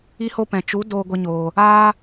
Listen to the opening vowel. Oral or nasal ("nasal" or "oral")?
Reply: oral